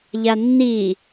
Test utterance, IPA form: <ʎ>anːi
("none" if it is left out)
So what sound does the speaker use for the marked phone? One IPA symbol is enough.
ʎ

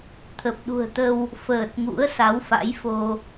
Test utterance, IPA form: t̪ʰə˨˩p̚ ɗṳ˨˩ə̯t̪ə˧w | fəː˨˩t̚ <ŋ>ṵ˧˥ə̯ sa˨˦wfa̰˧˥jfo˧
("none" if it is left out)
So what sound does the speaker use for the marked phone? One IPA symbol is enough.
ŋ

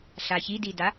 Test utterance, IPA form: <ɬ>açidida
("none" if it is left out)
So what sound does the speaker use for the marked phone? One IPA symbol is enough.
ɬ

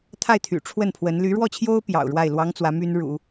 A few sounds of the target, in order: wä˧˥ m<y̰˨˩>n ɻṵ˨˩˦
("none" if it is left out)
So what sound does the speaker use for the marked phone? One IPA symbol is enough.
y˥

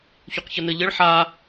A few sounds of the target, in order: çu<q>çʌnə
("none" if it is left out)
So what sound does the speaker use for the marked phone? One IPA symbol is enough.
q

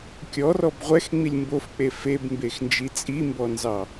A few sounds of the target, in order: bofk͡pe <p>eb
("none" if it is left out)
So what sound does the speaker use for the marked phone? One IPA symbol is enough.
f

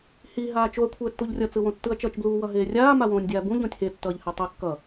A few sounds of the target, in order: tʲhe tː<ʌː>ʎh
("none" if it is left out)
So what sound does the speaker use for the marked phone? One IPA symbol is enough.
ʌː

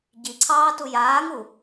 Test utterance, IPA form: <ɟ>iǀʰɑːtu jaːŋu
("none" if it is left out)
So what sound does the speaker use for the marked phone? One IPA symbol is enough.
ɟ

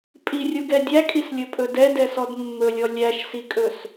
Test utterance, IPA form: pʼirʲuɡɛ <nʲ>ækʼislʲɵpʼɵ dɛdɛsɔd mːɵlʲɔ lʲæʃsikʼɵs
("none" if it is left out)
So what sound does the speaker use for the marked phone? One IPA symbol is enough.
dʲ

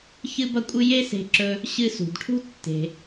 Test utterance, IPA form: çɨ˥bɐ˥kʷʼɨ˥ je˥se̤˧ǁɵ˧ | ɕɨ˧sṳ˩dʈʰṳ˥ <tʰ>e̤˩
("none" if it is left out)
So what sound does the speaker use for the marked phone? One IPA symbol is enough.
tː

